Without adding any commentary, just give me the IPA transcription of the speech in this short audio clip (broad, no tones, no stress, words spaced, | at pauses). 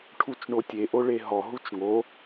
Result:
ʈʰut͡ʃɳotʲe ʔoɭeɦɔ ɦut͡ʃŋo